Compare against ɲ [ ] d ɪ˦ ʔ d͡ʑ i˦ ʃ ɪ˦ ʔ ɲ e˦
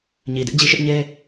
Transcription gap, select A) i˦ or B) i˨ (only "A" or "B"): B